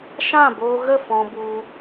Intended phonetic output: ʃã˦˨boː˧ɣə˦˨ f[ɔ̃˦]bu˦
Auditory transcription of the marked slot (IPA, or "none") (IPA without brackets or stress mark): ɔ̃˦